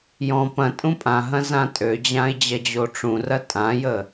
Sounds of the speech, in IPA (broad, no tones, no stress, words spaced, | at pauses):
jɔ̃ pɐ̃ tʼũpʼãɦɐ̃ zãtʼød͡ʑãɪ̯ d͡ʑɐd͡ʑoʈ͡ʂũrɐ tʼãjə